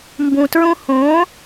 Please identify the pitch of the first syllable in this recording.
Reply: low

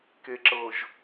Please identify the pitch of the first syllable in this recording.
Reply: low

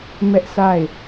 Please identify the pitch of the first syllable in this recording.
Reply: high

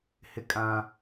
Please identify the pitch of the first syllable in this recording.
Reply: high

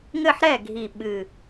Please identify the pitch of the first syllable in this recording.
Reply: falling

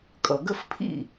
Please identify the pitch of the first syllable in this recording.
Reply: low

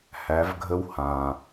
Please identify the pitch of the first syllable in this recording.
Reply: rising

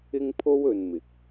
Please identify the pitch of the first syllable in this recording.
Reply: high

